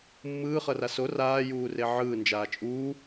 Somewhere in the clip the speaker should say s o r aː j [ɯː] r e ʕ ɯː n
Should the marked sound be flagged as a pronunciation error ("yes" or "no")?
yes